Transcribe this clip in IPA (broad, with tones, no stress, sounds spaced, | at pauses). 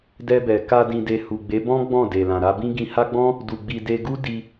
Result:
d ɛ˧ b ɛ˨ k a˧ d ĩ˨ d e˨ h u˨ ɡ͡b e˨˦ b ɔ̃˦ ɡ͡b ɔ̃˦˨ d e˨ l ã˨ ɾ a˧ b ĩ˦ ɡ ĩ˧ h a˦ ɡ͡b ɔ̃˦ | d u˨ ɡ͡b i˨ d e˧ ɡ u˦ d i˧